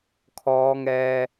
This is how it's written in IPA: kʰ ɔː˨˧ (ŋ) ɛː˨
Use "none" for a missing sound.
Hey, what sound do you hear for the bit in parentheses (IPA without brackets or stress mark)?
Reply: ŋ